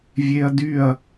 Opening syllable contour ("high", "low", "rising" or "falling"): high